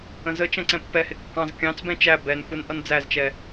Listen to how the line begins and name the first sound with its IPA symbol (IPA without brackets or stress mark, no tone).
ə̃